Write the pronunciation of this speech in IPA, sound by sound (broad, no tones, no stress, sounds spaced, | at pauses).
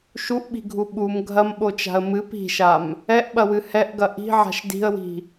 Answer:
ʃ u ʔ ɓ i̤ ɡʱ u ɓ u m ɡʱ ɐ m ɓ o t͡ʃ a̤ ə̯ m ɨ p i̤ ʃ a m | ɛ ʔ ɓ ɐ w ɨ h ɛ ʔ ɡ ɐ ʔ i̤ ʕ a̤ ʃ d i̤ ə̯ w i̤